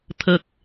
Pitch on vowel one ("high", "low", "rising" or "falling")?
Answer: low